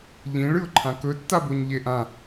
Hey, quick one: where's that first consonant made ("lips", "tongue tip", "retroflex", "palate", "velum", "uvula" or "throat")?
palate